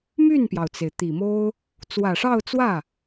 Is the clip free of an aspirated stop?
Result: yes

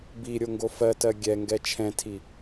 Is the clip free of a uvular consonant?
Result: yes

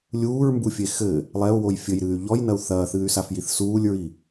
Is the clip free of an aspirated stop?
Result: yes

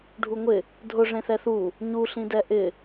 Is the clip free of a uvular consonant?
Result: yes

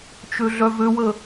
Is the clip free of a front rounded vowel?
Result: no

